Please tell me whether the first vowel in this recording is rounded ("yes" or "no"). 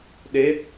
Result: no